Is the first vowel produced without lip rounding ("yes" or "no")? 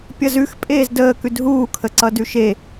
yes